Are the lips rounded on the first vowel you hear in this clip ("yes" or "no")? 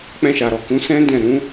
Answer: no